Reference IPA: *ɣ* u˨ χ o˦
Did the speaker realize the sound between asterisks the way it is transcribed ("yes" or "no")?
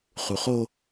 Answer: no